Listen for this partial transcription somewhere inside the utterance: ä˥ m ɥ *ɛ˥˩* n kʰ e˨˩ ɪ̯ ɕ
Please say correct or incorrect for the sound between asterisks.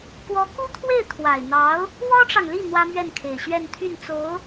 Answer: correct